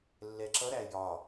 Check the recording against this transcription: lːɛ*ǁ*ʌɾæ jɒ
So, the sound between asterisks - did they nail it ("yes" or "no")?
yes